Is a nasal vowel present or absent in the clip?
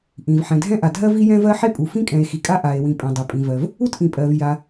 present